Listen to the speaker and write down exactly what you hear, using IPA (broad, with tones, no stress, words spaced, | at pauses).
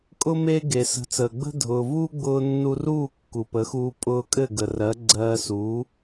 kʼʊ˧ me˧ ɡe˩sə̤˩˥t͡səː˩ ɡ͡bə̤˥ dʱʊː˩vuː˥ ɡ͡bʊː˧nːu˧ ruː˥˩ kːu˩pə˩˥xuː˧ pʼʊː˧kʼɘ˥˩ɡə˩rɜ˩˥ ɡ͡ǀɜː˧suː˩˥